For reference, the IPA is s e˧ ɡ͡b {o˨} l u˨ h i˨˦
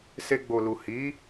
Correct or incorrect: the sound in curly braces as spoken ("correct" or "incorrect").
correct